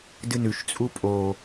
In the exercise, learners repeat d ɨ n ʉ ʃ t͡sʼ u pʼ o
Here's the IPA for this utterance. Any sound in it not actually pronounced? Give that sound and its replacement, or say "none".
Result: none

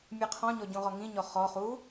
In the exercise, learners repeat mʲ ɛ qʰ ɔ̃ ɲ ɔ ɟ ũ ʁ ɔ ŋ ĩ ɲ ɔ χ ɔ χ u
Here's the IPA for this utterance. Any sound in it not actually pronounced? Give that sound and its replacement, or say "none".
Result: none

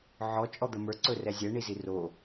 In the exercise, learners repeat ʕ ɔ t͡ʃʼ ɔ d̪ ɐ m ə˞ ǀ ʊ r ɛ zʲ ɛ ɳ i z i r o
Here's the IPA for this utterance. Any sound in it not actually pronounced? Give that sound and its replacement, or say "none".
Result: ʊ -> ɵ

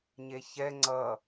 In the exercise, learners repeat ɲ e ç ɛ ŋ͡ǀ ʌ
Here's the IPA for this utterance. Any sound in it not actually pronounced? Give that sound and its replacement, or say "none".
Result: none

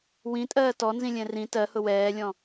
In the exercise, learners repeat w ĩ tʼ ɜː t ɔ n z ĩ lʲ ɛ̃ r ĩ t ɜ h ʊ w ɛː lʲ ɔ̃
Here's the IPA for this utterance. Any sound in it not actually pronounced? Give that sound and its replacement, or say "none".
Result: none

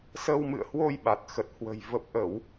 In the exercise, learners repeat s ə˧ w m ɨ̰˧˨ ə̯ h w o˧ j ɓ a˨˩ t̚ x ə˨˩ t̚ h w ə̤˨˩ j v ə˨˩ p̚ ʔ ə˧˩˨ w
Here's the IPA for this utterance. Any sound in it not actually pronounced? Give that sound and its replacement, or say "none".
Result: none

